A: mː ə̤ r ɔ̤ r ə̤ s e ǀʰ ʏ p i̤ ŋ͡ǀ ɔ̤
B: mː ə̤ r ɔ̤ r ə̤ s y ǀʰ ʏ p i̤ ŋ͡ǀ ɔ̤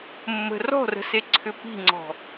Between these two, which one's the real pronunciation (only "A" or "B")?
A